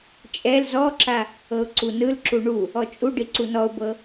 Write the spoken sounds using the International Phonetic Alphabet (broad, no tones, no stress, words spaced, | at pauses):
t͡ʃʼɛl zɔǁa | ɤʊ̯ǀunɯlǁu ɳu | ɔt͡ʃʼuɖi ǀunɔʊ̯bɤ